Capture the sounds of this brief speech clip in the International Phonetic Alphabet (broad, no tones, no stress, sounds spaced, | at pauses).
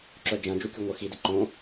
ǁ œ d͡ʒ ɐ̃ d͡ʒ u kʲ u ŋʷ ə x i d ɪ ǃ õ